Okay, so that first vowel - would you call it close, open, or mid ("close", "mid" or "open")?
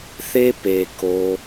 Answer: mid